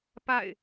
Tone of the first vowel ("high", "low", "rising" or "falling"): falling